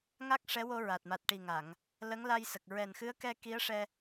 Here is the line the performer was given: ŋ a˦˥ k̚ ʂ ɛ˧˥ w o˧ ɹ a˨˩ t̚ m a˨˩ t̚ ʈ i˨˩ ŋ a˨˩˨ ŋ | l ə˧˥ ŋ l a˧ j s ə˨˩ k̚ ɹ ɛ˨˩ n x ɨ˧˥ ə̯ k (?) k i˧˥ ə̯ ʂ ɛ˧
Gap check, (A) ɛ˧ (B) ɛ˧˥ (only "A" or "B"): A